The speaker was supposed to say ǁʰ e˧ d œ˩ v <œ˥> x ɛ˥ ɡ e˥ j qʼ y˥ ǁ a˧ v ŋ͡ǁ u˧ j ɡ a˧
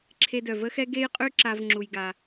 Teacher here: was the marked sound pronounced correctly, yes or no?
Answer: no